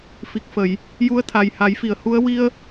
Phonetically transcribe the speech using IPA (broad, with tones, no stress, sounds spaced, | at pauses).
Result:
f i˨˩ k̚ f ə˨˩˨ j | j u˧˥ ə̯ t̪ʰ a˨˩ j h a˨˩˦ j f i˨˩˨ ə̯ h u˧˥ ə̯ w i˧ ə̯